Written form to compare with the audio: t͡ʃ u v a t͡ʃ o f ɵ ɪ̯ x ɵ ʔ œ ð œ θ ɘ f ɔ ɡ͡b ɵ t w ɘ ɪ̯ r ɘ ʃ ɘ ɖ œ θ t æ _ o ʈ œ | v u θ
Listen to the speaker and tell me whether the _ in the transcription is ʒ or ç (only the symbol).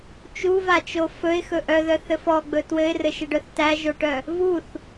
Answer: ʒ